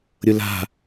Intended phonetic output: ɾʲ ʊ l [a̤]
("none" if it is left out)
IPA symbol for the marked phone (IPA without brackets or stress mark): a̤